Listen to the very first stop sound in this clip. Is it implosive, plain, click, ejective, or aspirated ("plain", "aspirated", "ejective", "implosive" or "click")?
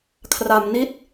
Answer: aspirated